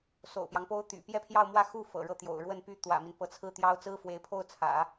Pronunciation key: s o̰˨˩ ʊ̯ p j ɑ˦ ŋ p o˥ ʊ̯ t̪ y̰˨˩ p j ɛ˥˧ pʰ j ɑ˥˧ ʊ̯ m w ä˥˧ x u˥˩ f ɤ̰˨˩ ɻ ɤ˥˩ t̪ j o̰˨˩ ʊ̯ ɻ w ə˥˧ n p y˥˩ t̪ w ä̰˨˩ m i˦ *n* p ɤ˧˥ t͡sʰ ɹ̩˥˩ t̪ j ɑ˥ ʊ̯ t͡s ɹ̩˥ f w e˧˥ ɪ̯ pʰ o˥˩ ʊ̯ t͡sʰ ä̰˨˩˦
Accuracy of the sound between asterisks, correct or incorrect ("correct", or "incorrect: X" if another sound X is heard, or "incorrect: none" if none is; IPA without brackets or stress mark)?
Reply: correct